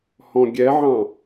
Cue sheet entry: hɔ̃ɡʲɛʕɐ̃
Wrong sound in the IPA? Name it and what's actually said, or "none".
ɐ̃ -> ɑ̃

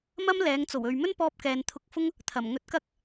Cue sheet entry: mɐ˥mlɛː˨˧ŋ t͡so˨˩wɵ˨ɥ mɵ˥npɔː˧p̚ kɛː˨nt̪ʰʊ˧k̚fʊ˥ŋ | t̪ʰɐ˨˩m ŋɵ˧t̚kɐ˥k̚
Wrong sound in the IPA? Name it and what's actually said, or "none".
none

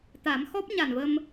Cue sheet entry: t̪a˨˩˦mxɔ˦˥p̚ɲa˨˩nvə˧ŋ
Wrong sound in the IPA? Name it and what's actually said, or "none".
ŋ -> m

